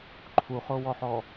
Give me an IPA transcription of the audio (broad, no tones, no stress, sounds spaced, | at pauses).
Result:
ǃʰ u χ o w ɔ ħ ɔ